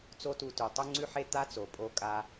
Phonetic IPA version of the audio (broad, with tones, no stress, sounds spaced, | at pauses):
t͡s o˥ t u˧ t ʉ˩ tˤ u˥ ŋ͡ǀ ʉ˥ ħ e˥ t̪ a˥ t͡s o˩ pʼ o˧ kʼ a˧